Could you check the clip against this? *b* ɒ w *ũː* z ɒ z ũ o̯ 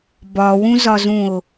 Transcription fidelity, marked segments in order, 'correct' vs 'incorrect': correct, incorrect: ũ

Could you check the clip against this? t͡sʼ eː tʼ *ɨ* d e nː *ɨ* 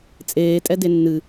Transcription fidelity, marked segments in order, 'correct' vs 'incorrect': incorrect: ɛ, correct

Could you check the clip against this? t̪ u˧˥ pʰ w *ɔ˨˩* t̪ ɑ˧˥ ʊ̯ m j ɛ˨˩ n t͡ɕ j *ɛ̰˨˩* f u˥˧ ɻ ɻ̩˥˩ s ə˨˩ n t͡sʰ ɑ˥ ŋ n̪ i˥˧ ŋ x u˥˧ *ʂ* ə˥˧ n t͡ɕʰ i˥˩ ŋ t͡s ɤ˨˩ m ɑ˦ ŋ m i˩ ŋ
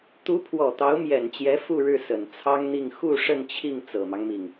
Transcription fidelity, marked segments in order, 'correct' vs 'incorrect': correct, incorrect: ɛ˧˥, correct

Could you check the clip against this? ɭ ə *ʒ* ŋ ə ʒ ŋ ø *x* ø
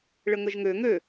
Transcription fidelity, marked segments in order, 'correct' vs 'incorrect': incorrect: none, incorrect: ŋ

